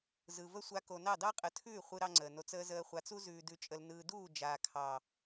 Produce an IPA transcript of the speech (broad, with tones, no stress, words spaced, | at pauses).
zɯ˨və˦ sʷa˧ko˨nɑ˦˨ dɑ˦qʼə˨˦tʰʉː˦˨ χʷɯ˦ɾɑ˦ŋ͡ǀəː˨no˧t͡s əː˧zəː˧χʷa˨˦t͡su˦ zʉː˧dʉ˧t͡ʃʼə˧l nɯː˨duː˦˨ d͡ʒaː˨kʰɑ˨